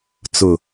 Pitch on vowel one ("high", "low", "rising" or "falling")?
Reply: low